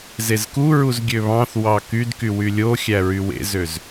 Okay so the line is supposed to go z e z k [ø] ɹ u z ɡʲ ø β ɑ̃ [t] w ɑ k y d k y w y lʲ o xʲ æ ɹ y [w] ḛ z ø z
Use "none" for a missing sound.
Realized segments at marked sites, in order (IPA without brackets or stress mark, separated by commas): u, θ, w